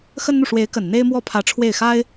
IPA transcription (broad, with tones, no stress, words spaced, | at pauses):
xə˥nn̪u˨ ʂwe˧˥ɪ̯kə˨˩n n̪e˥ɪ̯mwɔ˥pʰä˧˥ ʈ͡ʂʰwe˥˩ɪ̯xa˥ɪ̯